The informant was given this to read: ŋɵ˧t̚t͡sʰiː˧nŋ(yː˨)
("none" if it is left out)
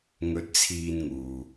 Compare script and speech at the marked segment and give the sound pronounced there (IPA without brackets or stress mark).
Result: uː˨